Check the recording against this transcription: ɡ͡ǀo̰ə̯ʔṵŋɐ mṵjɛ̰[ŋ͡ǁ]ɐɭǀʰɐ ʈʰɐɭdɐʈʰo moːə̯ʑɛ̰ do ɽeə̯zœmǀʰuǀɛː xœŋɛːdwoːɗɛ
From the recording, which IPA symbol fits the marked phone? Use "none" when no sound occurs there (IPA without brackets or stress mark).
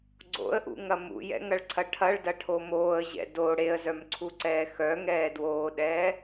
ŋ